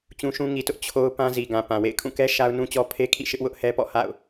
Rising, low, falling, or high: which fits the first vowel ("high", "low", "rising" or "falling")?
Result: high